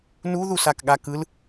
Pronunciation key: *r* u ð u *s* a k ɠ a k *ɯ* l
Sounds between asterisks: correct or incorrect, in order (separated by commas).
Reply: incorrect, correct, correct